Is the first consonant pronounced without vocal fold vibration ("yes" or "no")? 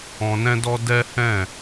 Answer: no